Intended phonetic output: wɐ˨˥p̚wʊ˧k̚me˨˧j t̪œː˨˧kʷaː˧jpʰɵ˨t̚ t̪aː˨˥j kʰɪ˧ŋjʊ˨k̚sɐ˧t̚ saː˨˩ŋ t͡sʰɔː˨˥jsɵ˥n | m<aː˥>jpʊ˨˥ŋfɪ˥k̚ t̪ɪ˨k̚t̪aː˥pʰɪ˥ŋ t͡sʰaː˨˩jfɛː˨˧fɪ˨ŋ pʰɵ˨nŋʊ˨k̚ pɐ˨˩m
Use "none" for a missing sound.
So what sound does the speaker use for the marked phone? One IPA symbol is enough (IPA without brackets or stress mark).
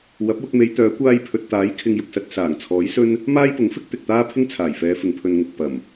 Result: aː˥